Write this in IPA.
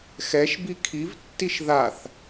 x ɛ ʃ b i kʰ i v tː i ʃ ð a θ

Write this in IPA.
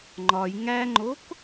ŋ͡ǃ ɒ j ŋ æ ŋ͡ǃ o k

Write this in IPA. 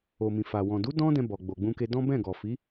o˨ m ĩ˨ f a˨ w ɔ̃˨ d u˨˦ d ɔ̃˦ d ɛ̃˧ b ɔ˨ ɡ͡b o˨ ɡ͡b ũ˧ k e˧ d ɔ̃˦ b ɛ̃˦˨ ɡ ɔ˨ f i˨˦

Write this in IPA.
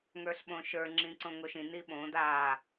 ŋ ə˞ ɬ ɓ õ ʃ ə˞ ŋ͡ǁ ĩ ǀ õ ŋ o ʃ ĩ n i ɓ õ d a

